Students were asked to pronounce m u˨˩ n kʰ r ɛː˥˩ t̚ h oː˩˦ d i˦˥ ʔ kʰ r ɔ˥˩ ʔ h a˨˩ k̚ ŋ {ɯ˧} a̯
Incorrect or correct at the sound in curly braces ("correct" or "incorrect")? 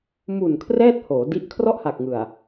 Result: incorrect